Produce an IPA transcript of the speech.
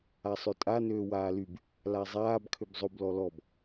asˤøtʼa nøːwaːlyb | lazˤaːb kʰøbzˤob lɔlɔb

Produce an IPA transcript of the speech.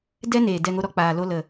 dɛ˦neː˨ dɛ˦˨ŋo˦ɾɔ˦ k͡paː˨lo˦lə˨

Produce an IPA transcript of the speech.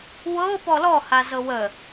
wɤ pɔlɔha zɤwə

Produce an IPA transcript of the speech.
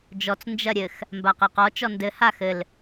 d͡ʒɔt͡s nd͡ʒɐɾʲɘx | mbaqɛqɔ t͡ʃɔndɘ haxɘl

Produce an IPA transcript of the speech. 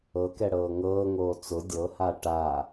ɤkɛɽɤː ŋɤːŋoː t͡sʊ dʲɤha ʈa

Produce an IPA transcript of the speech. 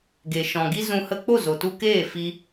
ɡe˨ʃɔ̃˨ ɡi˧ zũ˧hə˦ k͡po˦˨zo˨tu˧keː˦˨ fi˦

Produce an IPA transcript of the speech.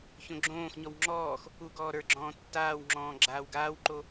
çõɡ͡ǁõːxɲɔw ŋ͡ǁɔːx | uɡɔː ɾə˞ɡ͡ǁɔ̃ː tːaːwŋ͡ǁɔ̃ː ɡ͡ǁaːwɡaːwǃo

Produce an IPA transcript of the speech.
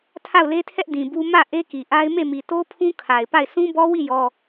tʰa˦˨ʊ̯le˦tʰɛ˦ʔ dĩ˨bu˦ mä˦˨ ʔe˦ki˨ʔa˦ɪ̯ me˦˨mi˨ to˦pʰũ˦ kʰa˨ɪ̯pa˦˨ɪ̯ sʰũ˦bɔ˦wi˦˨ jɔ˦

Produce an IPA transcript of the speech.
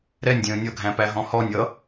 ɾɛnʲdʲə̃ː nʲʌɡʱæ̃pæɦɔ̃ hɔnʲ ʌ

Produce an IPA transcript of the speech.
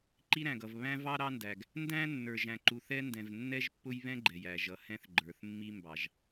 ǃi˦ɾæ̃˨ɡʌ˨v βæ̃˦vɑ˦ ɾɑ˦ndæ˨ɡ | ndæ̃˦nːə˞˨ʒ æ̃˨ǃu˨θɛ˦ndɛ̃˨v nːɛ˦ʒpːʊ˦jβɛ̃˦ ɡ͡ǃɛ˨jæ˨ ʒʌ˨˦hɛ̃˦θɡ͡ǃə˞˨θ mːi˦mbɑ˨ʒ

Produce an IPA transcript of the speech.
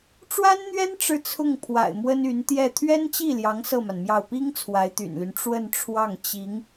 ʈ͡ʂwa˥nn̪ɥɛ˥n ʈ͡ʂɻ̩˥˧t͡sʰʊ˥˩ŋ pʰwa̰˨˩ɪ̯mwə˥ny˧˥n t̪jɛ˥˩ t̪ʰɥɛ˥nt͡ɕi˥˩ljɑ˧˥ŋ sɤ˥˩ma˩nmjɑ˥˩ʊ̯ pi˥ŋ t͡sʰwa˧˥ɪ̯t̪y̰˨˩nly˦n ʈ͡ʂwə˥˧nʈ͡ʂʰwɑ˥˩ŋ t͡ɕi˧˥ŋ

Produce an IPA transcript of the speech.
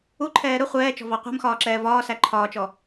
uǃʰɛː ɾʊ χʷɛːt͡ʃɔ̤vɑ qʷæ̤mxɒːǁɛː vɒːsæ ǃʰɒːt͡ʃɔ

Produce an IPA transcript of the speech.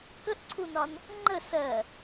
kəʔǀʰunɒn | ŋ͡ǃə sɜ

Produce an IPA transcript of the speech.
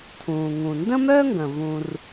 tʰũː˩ ŋũ˩ndə̃˥mœ˥ŋɡə̃˩ vũ˩r

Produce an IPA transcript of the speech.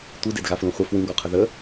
tʷidedɣaflũ χʷə fwĩɡɔqʰə ðə

